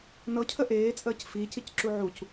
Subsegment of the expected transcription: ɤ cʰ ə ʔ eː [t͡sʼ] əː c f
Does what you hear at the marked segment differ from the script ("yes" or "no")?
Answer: no